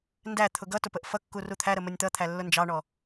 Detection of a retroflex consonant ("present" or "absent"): present